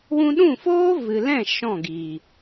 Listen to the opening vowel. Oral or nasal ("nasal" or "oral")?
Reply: nasal